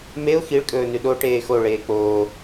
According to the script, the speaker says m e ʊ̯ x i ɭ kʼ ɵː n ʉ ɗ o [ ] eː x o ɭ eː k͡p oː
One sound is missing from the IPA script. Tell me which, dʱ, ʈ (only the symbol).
ʈ